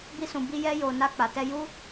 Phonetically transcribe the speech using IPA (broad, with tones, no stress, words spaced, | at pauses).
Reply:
bi˧sũ˨bi˧ jɛ˧jo˨ na˧k͡pa˨tɛ˧ ju˧